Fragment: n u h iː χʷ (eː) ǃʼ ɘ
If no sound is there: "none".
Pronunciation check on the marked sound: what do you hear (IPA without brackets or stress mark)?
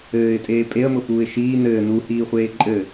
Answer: eː